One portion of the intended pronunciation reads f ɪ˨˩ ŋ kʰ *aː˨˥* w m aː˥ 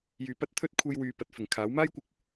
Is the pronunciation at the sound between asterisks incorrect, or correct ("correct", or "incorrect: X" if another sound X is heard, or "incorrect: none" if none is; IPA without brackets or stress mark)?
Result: correct